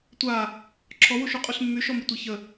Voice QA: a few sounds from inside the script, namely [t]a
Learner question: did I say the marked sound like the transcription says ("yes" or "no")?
no